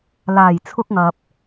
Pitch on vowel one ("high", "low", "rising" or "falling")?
low